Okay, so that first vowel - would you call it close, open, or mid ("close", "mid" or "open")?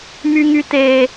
close